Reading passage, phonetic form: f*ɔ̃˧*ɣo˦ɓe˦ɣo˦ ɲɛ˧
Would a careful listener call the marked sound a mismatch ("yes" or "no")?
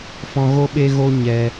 no